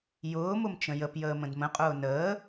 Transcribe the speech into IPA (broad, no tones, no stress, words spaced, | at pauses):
jʊːmʊmt͡ʃə̃ jəpjəːmə̃d mə̃qʼʊː nəː